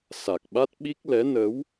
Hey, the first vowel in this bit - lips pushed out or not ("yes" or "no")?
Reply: no